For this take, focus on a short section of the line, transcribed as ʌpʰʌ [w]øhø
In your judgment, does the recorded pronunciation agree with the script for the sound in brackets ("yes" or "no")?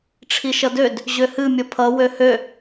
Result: yes